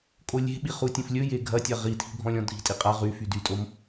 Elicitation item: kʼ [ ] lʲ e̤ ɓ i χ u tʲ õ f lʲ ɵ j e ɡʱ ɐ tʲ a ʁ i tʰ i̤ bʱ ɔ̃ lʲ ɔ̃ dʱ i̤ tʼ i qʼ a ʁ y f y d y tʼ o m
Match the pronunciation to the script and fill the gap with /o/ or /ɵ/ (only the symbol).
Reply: o